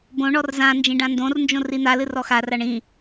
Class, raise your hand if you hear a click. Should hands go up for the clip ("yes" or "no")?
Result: no